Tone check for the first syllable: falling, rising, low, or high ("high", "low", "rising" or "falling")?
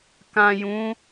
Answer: low